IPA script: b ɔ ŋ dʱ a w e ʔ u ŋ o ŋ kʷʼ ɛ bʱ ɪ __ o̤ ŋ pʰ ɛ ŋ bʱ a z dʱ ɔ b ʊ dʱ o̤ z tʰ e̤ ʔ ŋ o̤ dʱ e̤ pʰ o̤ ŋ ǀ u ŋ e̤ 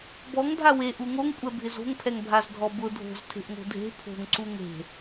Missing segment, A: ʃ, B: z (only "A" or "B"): B